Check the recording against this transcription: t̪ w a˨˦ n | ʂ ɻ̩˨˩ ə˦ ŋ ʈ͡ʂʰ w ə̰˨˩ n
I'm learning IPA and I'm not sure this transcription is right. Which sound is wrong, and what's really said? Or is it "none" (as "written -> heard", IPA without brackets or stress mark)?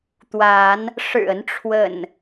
ŋ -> n